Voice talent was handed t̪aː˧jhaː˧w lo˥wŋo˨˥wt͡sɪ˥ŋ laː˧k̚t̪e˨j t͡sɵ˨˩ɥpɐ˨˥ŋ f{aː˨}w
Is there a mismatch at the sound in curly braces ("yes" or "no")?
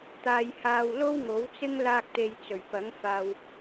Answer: yes